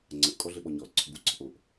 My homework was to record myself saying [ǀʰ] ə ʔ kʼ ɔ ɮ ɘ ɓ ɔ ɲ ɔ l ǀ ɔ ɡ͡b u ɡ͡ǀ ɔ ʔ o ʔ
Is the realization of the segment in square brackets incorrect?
yes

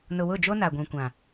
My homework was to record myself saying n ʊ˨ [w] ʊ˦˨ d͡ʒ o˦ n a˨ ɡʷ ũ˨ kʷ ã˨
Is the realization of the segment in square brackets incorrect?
no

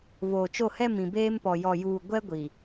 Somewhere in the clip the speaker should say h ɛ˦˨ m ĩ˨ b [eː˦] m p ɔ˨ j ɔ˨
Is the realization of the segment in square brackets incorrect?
no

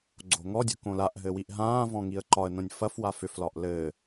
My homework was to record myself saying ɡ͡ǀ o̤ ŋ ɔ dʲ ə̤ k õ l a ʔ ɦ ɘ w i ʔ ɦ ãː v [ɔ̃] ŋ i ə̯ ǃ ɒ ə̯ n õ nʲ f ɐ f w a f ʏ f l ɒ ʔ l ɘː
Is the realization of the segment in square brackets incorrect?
no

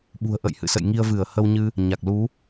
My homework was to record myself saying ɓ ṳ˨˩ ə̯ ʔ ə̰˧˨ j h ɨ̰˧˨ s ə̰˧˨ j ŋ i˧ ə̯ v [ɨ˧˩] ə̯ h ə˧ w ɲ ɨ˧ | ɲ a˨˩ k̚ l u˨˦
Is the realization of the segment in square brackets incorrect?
no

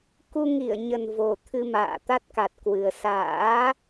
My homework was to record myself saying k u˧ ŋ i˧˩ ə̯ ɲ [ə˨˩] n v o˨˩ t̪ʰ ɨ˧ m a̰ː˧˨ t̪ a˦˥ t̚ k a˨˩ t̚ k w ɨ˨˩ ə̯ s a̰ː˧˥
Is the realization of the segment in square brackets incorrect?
no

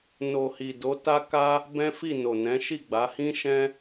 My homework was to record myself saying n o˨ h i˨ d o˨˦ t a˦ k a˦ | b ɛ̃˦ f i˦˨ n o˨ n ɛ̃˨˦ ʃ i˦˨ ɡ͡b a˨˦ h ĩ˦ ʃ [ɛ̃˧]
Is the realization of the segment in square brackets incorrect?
no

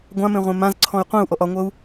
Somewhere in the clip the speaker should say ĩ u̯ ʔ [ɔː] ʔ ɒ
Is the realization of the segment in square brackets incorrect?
yes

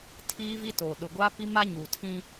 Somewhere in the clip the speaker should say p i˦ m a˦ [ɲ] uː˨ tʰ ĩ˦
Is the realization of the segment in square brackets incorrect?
no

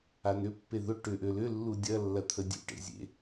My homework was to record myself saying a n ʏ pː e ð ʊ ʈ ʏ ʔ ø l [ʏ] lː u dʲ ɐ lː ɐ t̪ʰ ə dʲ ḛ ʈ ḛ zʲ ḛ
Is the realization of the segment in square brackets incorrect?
no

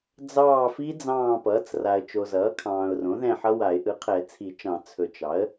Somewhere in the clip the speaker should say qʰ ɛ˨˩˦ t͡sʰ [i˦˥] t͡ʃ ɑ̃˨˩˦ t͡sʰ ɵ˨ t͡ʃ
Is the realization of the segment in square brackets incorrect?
yes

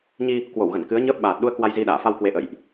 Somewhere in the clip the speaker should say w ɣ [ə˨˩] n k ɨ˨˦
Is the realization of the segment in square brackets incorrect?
yes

